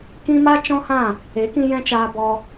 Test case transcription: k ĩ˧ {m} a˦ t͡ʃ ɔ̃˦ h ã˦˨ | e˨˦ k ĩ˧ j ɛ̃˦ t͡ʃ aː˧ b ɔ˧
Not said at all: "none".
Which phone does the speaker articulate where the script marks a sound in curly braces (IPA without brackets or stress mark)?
m